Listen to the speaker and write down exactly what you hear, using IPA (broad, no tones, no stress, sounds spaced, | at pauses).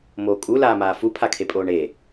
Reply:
m oː kʼ u l aː m aː f u pʰ a kʰ e pʼ oː ɳ e